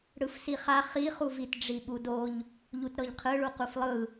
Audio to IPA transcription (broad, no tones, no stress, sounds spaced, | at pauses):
ɽ ɯ f s i χ a χ i χ u v i t ɖ͡ʐ i ɓ u d o ʎ | ʎ u t ɾ ɤ ʎ qʰ ɯ ɭ u q u f lˠ ɯ